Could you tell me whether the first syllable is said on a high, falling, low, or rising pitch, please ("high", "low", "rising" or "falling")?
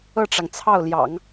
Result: falling